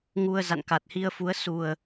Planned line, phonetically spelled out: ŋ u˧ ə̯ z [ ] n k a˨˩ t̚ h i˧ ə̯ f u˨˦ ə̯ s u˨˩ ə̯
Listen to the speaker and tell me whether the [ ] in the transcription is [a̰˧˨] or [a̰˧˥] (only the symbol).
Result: a̰˧˨